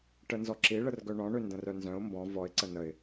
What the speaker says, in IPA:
ʈ ə n z ɔ ǁ i ɭ ə r ɡ œ ɳ ɔ̃ ɳ ø n d ə̃ r œ n z œ̃ ʊ̯ m b ɔ̃ v ɔ ɪ̯ ǀ ə n ə ɪ̯

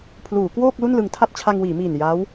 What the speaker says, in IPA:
pʰ l uː˩˦ k w oː˥˩ k̚ l u˥˩ n l ɯ˧ ŋ tʰ a˥˩ t̚ t͡ɕʰ a˧ ŋ w iː˩˦ m iː˨˩ n j a˦˥ w

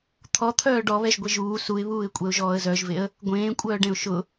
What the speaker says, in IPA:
t̪ʰ ɔ t̪ʰ œː ɖ ɔ β ɛ ʒ ɡʷ e ʒ uː s u ɪ̯ β uː ɪ̯ kʷʼ ɛ ʊ̯ ʒ ɔː ə̯ z œ ʒ v e ə̯ | ɡʷ ẽː kʷʼ œː ɖ ẽ ʊ̯ ʃ ʊ

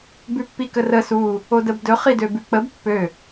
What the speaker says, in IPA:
b ʉ pː i k ə r ə s u | o d ə b d ɵ χ i d ø b ʉ k͡p ə b pː ø

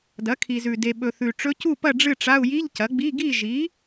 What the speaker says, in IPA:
d ɐ˩˥ kʰ i˨ z ʉ˨ d e˨ ɓ ɵ˨ θ ʉ˨ ʈ͡ʂ ɵ˧˥ c u˥˨ p ɐ˥˨ ɖ͡ʐ ɨ˥˨ ʈ͡ʂ a˧˥˧ u̯ j i˧˥˧ ʎ c ɐ˩˥ ɡ͡b i˧˥˧ ɡ i˥˨ ʒ i˩˥

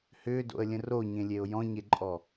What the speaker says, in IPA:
h ʏː d o̰ ə̯ lʲ ə̃ r o ɲ ẽ lʲ e ʊ̯ j ɔ̃ ɲ e ǃʼ ɔ

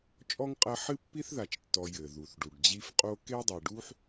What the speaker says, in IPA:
t͡ʃʼ ɔ˥ ŋ qʼ ɐ˦ ħ ɨ˥ pː i˥ θ ð a˨ t͡ʃ tː ɔ˨ j ɘ˩ ð u˩ θ ɖ u˩ ɖ d͡ʑ i˦ f qʼ o˥ k e˥ dˤ e˨ ɖ u˥ ħ

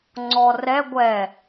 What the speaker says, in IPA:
ŋ͡ǀ ɔ r ɛ ɡʷ ɛ

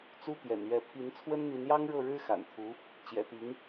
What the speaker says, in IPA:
t͡s u˥ t̪ j ɛ̰˨˩ n ɥ ɛ˧˥ pʰ i˧˥ n t͡sʰ w ə˥ n n̪ i˧˥ n j ɑ˥ ŋ ɻ ɤ˥˩ ɻ ɻ̩˥ x a̰˨˩ n t̪ʰ u˧˥ | t͡ɕ j ɛ̰˨˩ t̪ i˧˥ ŋ

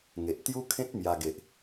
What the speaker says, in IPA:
ŋ e˨ ʔ t̪ j u˦ kʰ ẽ˦ t̚ m j a˧ ɡ e˨ ʔ

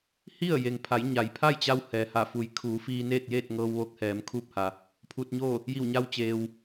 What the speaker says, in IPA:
h i˥˨ ə̯ j e˩ ŋ pʰ a˩˧ j ɲ a˩ j pʰ a˥˨ j t͡ɕ a˧ w h ɛː˩ h a˧˩ f u˩˧ j kʰ uː˩˧ f iː˧ n eː˥˨ t̚ j eː˥˨ t̚ ŋ ɤː˧ w ʋ o˧˥ k̚ h ɛː˩˧ m kʰ uː˥˨ p̚ h a˩ | pʰ u˧ t̚ ɲ o˥˨ | j i˧˩ w ɲ a˧ w t͡ɕ eː˩ w

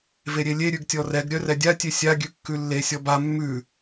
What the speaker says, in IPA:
v e ɾʲ e lʲ e ɾʲ ʉ ɡ tʲ ɔ r ɛ ɡ ɾʲ œ r ɛ dʲ a tʲ e sʲ a ɡʲ ʉ kː ʉ lː e sʲ ɔ b a mː ʉ

